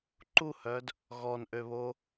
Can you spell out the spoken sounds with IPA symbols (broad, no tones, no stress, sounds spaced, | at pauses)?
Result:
ǃ u h œ d | ɣ ɔ n ʔ ø β o